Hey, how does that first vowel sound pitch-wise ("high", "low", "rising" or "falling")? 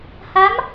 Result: rising